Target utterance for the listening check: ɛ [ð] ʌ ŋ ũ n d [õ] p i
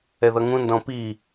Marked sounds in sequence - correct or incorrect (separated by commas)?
correct, incorrect